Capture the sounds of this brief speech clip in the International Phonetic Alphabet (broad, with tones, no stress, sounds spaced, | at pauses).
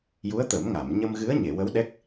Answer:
j u˧˥ ə̯ t̪ ə˨˩˦ m ŋ a˨˩˨ m ɲ ə˧ m ɣ ɨ˧˥ ə̯ ɲ e˨˩˨ w ə˧˥ w ɗ ɛ˦˥ k̚